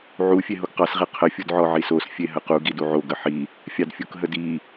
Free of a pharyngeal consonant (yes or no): no